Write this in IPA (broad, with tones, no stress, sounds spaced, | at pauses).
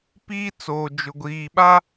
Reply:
p iː˦ t͡s oː˨ d͡ʒ ʊ˨ ɡʷ iː˨ ɓ a˦